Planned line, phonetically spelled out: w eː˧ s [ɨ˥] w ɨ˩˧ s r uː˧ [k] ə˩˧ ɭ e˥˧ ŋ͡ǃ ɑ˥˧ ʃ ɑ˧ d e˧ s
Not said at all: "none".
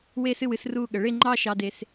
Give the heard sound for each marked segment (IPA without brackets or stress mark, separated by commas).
ɨ˧˩, ɠ